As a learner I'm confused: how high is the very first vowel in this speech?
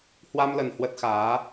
low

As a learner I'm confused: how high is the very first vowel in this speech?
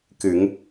high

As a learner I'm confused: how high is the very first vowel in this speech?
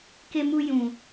mid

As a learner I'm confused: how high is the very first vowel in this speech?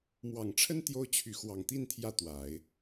low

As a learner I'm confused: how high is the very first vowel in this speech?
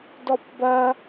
mid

